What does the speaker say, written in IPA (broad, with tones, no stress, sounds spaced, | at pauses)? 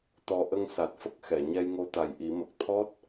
t̪ ɔ˧ ʔ ə˧ ŋ s a˨˩ t̚ f ə˦˥ k̚ x ɛ˨˩˨ ɲ ɛ˧ j ŋ o˧˥ t̪ a˨˩ j ʔ i˨˩˦ m ə˨˩ k̚ t̪ʰ ɔ˦˥ t̚